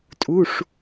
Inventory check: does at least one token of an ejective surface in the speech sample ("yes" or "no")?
yes